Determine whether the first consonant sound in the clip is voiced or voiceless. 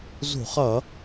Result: voiced